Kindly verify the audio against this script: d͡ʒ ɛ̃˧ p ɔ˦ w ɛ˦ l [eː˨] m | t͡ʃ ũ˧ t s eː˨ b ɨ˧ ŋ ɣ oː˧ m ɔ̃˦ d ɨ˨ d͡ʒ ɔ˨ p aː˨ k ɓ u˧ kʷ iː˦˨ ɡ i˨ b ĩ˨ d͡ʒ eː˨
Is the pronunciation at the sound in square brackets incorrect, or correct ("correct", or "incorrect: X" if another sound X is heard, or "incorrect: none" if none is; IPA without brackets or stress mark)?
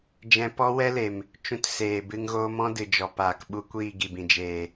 incorrect: e˨